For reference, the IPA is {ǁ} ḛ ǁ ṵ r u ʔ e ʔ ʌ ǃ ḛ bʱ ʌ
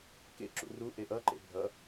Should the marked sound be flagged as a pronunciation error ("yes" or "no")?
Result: yes